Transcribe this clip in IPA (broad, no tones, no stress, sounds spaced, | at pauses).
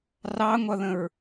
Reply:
r ɑ ŋʷ ʌ ð ə̃ ɹ